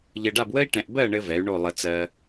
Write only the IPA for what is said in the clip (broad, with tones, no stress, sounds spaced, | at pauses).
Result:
ʎ ɘ˧ ɖ a˥˧ b w ə˥ i̯ ʈ ɛ̃˧ ʔ b ɜ˥˧ ɳ ɘ˥ v ɛ˨˥ y̯ ɳ o˥˧ lˠ ə˧ t͡s ɜ˧